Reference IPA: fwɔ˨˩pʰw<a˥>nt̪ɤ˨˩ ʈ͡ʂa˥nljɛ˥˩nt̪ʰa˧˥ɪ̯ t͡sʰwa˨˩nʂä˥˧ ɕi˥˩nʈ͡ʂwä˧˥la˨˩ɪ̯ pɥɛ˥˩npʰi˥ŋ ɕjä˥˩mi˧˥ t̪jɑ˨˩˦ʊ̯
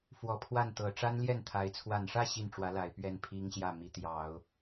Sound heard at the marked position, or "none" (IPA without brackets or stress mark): a˥˩